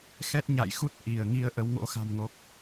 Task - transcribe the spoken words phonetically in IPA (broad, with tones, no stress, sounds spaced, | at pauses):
x ɛ˦˥ t̚ ɲ a̰˧˨ j x u˦˥ t̚ ʔ i˧˩ ə̯ ŋ i˧ ə̯ ʔ ə˨˦ w ŋ o̰˧˥ x a̤˨˩ m ŋ o˨˩ k̚